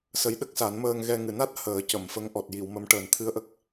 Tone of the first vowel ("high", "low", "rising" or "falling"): rising